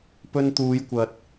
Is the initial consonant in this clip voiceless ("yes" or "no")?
yes